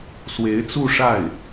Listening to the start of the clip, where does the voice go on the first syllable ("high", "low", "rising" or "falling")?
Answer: rising